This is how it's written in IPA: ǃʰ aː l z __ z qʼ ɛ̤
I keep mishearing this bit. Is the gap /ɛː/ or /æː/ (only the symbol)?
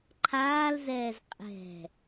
ɛː